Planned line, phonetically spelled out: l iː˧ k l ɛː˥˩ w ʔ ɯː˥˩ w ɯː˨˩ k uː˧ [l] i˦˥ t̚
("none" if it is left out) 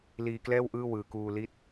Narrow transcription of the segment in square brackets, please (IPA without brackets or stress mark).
l